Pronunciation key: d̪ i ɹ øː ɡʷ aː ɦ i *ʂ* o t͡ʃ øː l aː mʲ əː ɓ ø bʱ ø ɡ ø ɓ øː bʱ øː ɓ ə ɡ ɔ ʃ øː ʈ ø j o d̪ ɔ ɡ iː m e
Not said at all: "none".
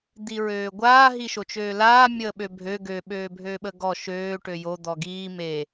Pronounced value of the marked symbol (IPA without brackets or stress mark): ʃ